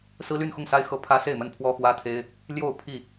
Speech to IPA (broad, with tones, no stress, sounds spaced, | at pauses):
s ɹ̩˦ l y˥˨ n x ʊ˥˨ ŋ s a˦ ɪ̯ x ɤ˦ pʰ ä˦ s e˥˨ ɪ̯ m ə˥˨ n pʰ w ɔ˦ x w ä˦ t̪ʰ e˦ ɪ̯ | l j o˥˨ ʊ̯ pʰ i˥˨